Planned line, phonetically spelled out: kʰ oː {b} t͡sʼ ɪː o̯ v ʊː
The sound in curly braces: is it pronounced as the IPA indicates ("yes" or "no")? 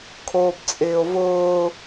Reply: yes